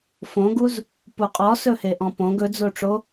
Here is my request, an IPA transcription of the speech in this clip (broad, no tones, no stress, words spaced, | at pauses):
fõɡuz | puqʼɔsɵhe ʔɔ̃põɡ ɵd͡zoʈ͡ʂo